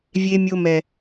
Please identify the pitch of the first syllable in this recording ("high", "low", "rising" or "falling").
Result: high